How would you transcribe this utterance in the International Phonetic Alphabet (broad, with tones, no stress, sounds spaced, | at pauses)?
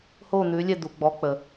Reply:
h o˥˩ n̪ ʉ˩˥ lʲ ɛ˥˩ d̪ u˩ ɡ͡b ɔ˩˥ k͡p ə˩